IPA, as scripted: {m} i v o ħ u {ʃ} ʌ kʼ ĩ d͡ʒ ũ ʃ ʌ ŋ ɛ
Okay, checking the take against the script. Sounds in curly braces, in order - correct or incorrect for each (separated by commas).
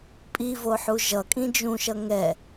incorrect, incorrect